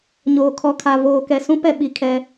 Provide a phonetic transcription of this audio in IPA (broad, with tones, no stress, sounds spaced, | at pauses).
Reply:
ɲ oː˨ kʰ ɔ˨ kʰ a˨ v oː˨ k ɛ˨ s ũ˦ p ɛ˦ ɓ i˨ kʰ ɛ˦